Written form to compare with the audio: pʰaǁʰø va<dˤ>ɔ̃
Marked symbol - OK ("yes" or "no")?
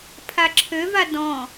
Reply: no